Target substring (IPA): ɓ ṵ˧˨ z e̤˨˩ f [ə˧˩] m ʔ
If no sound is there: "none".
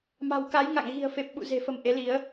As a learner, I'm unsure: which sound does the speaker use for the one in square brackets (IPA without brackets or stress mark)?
ə˧˩